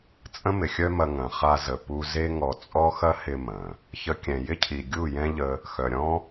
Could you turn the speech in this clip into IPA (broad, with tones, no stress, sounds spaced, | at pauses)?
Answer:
t͡sʼ ə̃˦ m ɪ˨ xʲ œ˦ m ɐ˧ ŋ ɐ̃˨ χ a˧ z ə˧ p u˦ z e˦ ŋ ɔ˧ t͡sʼ ɔ˦ x ɐ˦ h ɪ˧ m ɐ̃˨ | ç ə˦ kʲ ɛ̃˧ j ɪ˦ cʰ i˨ ɡʲ u˦˨ j ɛ̃˦ ʎ ə˧ | x œ˨ ɾʲ ɔ̃˦